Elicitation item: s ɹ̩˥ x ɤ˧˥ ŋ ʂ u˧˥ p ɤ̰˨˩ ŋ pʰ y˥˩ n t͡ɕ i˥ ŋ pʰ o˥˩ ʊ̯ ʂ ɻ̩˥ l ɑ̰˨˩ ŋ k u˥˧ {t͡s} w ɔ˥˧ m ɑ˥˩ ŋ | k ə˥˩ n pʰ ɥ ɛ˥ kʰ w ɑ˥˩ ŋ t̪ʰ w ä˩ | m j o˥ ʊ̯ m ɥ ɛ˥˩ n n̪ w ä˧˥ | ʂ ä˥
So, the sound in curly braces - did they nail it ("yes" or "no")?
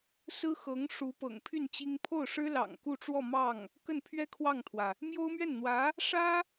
no